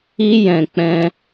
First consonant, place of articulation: palatal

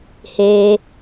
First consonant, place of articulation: glottal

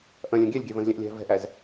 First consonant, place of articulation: glottal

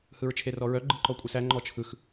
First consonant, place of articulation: glottal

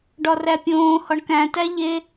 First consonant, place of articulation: retroflex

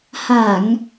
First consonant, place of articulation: glottal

